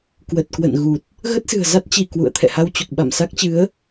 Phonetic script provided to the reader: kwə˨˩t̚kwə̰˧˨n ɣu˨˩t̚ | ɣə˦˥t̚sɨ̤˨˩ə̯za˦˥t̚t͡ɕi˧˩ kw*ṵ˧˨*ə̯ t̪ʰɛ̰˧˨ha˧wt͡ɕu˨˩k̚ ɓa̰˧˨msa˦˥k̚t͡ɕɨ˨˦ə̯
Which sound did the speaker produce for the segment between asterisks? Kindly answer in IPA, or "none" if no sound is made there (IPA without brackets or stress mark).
ṵ˧˨